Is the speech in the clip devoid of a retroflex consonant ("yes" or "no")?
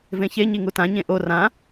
yes